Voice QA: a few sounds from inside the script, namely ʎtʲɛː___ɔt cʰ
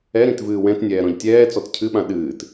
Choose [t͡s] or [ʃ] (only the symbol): t͡s